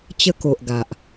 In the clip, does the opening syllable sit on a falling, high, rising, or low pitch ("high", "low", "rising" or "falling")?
high